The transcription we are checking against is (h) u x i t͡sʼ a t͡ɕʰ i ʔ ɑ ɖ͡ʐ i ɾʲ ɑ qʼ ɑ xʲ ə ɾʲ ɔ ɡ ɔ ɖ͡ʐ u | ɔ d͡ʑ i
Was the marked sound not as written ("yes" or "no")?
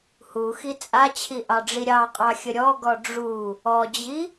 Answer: no